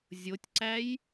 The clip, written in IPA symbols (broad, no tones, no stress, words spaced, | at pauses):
zʲotʲǀæj